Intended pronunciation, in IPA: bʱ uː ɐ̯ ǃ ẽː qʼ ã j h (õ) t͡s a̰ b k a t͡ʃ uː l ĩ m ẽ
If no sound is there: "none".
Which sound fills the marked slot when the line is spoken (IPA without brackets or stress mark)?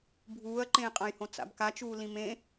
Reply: õ